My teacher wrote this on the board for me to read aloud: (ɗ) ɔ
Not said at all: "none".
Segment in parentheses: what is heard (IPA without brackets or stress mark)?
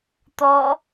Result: t̪